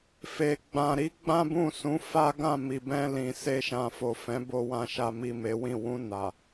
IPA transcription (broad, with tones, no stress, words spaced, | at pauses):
fe˨ ɡ͡bã˨ɾi˨˦ ɡ͡bã˦bũ˦˨sũ˨˦ fa˦ ɡã˦˨mi˨bɛ̃˧lĩ˨ se˧ʃã˨fo˨ fɛ̃˨˦ bo˧wã˧ ʃa˨mi˨ me˨˦wĩ˦˨ wũ˧ na˨